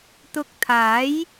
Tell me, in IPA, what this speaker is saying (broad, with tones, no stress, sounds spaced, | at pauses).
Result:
t̪ ʊ˧ k̚ t̪ʰ aː˨˥ j